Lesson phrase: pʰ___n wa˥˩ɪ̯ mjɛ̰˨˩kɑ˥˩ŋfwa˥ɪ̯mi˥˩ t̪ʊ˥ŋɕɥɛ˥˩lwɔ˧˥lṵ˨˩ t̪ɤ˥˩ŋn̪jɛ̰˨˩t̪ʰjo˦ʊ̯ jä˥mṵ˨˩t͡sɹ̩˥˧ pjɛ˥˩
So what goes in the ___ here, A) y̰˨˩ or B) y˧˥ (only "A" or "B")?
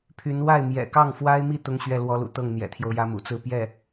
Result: B